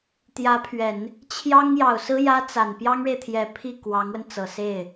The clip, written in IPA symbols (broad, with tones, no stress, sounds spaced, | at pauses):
t̪ j ä˧˥ pʰ ɥ ɛ˨˩˦ n | t͡ɕʰ j ɑ˥ ŋ j ɑ˨˩ ʊ̯ s ɹ̩˥ j ä˥ t͡s a˨˩ n p j ɑ˥ ŋ ɻ e˨ ɪ̯ t̪ʰ j ɛ˨˩ pʰ i˥˩ k w ɑ˧˥ ŋ w ə˧ n t͡s ɤ˨˩ s e˥˩ ɪ̯